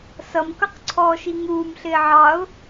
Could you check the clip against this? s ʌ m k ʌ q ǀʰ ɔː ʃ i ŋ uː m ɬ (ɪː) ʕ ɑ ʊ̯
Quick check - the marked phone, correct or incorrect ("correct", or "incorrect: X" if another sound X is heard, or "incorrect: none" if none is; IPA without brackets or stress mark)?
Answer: correct